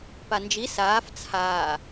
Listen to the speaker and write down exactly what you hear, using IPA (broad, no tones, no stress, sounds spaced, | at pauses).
p a n d͡ʒ i s aː f t͡sʰ aː